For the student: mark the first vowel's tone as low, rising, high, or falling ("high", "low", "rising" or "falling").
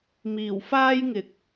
low